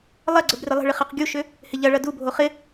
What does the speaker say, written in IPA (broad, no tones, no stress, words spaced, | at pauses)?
lˠɐɡ͡ǀəb rɪlˠə̤ɭɪ χɐqɡʲuʃʏ | hɪʎɐɭɐ dubʱo χɪ